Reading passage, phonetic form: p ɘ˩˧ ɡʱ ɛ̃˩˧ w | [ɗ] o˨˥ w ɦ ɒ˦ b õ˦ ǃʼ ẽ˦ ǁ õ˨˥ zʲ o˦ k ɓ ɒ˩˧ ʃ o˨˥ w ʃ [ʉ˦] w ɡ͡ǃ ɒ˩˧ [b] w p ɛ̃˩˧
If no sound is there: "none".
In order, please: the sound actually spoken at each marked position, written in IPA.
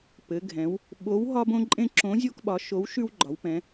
ɓ, ʉ˦, none

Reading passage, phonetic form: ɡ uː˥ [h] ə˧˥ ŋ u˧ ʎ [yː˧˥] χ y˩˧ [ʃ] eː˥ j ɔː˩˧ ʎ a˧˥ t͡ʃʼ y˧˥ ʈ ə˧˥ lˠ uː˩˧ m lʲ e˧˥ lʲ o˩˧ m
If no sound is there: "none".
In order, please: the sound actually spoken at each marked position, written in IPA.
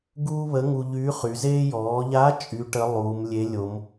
β, yː˧˥, z

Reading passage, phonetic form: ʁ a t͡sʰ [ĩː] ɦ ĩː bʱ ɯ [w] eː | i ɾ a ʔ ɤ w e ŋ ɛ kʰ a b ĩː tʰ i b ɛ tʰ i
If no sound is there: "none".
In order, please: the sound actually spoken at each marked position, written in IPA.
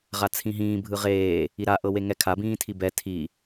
ĩ, ʁ

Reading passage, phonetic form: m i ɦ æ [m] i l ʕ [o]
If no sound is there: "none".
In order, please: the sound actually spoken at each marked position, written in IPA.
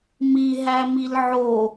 m, o

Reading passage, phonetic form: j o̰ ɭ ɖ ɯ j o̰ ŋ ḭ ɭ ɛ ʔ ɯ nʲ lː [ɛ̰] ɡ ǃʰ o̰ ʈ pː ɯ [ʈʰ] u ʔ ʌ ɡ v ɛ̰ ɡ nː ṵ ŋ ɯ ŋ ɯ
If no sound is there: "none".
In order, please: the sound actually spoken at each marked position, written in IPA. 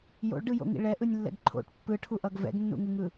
ɛ̰, ʈʰ

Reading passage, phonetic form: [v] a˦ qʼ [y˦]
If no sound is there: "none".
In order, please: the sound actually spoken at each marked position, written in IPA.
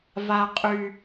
v, y˦

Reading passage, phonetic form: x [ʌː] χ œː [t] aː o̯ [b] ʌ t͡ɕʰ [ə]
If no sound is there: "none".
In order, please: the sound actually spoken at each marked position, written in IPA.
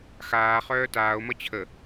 aː, t, m, ə

